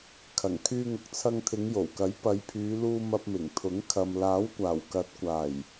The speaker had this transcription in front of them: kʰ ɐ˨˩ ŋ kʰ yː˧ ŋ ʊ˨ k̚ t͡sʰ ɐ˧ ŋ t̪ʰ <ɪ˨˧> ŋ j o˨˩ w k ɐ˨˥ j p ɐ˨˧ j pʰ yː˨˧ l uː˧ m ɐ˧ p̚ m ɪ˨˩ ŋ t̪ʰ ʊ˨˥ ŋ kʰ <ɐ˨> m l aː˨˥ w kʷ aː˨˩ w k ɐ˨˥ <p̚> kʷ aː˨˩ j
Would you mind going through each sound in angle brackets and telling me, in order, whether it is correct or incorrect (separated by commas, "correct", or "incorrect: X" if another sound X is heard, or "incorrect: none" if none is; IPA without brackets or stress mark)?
correct, correct, incorrect: t̚